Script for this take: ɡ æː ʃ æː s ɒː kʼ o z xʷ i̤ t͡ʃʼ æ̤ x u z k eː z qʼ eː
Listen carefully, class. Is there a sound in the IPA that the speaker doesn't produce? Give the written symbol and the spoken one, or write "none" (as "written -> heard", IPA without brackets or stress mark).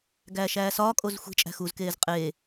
none